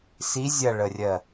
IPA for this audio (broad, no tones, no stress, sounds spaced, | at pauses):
s i zʲ ɐ ɭ ə rʲ ɜ